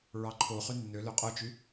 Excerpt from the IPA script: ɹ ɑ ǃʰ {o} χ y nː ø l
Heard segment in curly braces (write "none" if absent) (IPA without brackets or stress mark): o